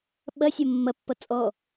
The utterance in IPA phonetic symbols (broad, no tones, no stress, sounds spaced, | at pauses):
ɓ ɐ sʲ ɐ mː ɐ pː ʌ t͡sʼ ɔ